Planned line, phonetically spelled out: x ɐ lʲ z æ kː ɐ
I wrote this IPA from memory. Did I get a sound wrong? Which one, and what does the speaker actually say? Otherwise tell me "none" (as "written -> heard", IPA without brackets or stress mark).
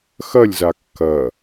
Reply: æ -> a